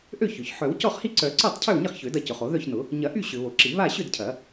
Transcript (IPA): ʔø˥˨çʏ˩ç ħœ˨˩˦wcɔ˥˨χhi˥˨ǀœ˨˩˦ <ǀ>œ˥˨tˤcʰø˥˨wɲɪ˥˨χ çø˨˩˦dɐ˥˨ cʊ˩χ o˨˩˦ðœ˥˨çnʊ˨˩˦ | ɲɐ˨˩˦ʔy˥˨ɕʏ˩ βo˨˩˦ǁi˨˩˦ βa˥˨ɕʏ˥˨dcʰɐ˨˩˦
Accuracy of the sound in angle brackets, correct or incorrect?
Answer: correct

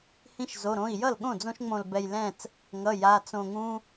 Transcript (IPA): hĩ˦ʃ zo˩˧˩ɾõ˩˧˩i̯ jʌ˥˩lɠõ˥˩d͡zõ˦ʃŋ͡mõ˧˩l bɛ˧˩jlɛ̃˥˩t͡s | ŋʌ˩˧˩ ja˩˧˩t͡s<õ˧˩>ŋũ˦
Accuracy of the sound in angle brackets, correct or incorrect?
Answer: correct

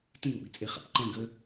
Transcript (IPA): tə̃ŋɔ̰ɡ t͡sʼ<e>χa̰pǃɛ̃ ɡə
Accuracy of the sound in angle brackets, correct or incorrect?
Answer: correct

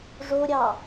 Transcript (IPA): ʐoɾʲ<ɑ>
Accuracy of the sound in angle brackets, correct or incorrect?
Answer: correct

